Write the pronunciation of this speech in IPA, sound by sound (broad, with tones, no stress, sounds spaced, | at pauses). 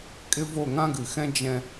kʼ ɪ˦ v o˦˨ ŋ ã˦ ɡ ɨ˨ x ɛ̃˦ d͡ʒ ɛ̃˦